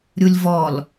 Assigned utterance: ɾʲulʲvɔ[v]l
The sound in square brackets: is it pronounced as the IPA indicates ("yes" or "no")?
no